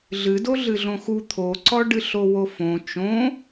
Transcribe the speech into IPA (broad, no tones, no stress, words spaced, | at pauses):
ɮɨdo ɮɨɮõxu t̪ʰoǀɔɖɨ ɬowofõ t͡ʃõ